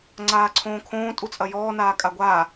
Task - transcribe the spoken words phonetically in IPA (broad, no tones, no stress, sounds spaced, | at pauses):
ŋ͡ǀ aː ǀʰ õː kʰ õː tʼ u t͡sʼ ɐ j ɔː n aː kʼ a ɡʷ aː